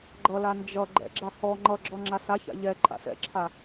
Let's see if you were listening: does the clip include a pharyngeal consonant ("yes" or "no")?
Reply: no